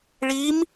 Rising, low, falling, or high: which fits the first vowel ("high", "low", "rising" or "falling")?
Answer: rising